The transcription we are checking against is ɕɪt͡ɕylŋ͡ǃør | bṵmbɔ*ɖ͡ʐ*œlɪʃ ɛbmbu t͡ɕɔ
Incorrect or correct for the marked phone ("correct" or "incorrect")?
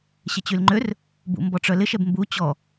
incorrect